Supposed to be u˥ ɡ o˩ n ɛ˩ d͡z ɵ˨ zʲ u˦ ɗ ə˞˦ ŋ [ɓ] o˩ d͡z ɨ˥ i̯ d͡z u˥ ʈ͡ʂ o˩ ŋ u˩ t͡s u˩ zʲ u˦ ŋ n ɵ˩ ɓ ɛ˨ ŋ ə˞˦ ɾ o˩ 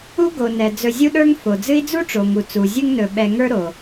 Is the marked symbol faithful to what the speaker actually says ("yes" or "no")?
no